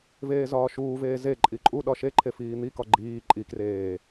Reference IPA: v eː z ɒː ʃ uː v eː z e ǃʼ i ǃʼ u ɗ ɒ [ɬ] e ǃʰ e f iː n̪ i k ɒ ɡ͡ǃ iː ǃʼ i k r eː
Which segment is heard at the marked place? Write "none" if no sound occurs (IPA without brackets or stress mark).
ʃ